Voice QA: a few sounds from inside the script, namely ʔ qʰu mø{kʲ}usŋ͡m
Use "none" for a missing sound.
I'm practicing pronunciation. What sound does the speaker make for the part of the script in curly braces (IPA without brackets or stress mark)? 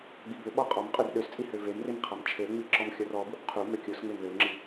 kʲ